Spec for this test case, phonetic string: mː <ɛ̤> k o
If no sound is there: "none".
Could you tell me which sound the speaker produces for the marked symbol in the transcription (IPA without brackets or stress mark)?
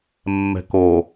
ɛ̤